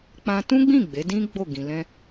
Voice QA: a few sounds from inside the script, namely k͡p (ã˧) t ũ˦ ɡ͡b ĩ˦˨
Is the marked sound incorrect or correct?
correct